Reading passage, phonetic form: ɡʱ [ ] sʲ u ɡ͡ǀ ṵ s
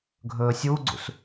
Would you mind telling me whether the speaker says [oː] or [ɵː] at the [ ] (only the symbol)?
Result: ɵː